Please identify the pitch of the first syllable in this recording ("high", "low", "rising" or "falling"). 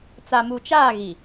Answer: low